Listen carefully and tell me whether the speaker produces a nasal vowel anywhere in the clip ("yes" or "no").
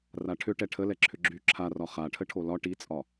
no